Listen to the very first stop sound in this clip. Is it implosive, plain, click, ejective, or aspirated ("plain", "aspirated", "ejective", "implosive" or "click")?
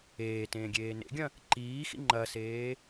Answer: plain